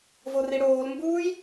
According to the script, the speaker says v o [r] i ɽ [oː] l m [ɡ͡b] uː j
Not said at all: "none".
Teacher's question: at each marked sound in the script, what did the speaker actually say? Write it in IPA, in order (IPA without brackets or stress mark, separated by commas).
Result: r, oː, b